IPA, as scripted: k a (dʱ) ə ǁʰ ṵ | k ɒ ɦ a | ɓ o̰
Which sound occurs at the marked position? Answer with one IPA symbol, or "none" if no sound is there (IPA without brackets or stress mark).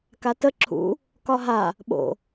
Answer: t